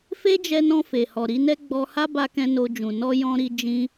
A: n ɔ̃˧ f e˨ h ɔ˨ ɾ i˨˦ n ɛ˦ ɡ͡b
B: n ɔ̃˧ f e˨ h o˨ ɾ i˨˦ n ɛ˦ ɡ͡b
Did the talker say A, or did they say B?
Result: A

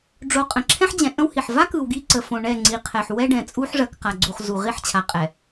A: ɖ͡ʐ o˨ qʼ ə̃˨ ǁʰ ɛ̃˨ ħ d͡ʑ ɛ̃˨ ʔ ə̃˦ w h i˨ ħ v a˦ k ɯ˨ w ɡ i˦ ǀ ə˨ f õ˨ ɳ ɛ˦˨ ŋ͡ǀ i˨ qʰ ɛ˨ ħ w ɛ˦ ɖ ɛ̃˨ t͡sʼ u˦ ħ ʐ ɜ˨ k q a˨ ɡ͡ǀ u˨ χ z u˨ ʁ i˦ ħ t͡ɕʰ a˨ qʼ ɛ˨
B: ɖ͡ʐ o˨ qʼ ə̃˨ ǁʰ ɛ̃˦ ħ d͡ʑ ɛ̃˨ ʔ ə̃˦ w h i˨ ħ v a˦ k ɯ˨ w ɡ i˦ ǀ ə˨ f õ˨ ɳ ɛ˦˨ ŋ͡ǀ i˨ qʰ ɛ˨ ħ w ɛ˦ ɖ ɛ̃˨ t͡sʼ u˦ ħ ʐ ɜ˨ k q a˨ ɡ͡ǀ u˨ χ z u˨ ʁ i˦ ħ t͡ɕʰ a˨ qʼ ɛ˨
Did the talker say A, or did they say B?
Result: B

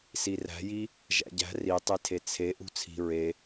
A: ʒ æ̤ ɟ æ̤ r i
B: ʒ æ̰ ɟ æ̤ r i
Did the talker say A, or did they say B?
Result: B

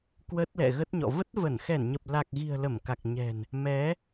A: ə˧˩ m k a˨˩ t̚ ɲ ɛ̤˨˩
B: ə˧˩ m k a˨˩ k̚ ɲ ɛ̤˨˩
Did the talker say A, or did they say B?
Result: B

